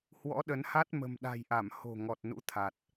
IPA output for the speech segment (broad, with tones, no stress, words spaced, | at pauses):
hwɔ̰˧˥ ɗə˨˦nha˦˥t̚ mə̤˨˩mɗa̤˨˩jʔa˧˩m ho̤˨˩ŋɔ˨˩t̚ nṵ˧˥t̪ʰa˨˩t̚